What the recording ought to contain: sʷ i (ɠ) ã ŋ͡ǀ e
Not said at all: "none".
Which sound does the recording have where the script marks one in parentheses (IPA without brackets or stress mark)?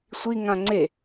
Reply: ŋ